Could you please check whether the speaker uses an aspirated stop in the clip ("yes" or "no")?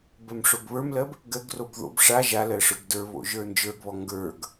no